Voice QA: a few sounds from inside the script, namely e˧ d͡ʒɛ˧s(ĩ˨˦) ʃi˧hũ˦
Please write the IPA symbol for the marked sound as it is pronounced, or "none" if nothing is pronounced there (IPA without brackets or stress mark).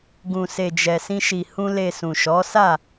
ĩ˦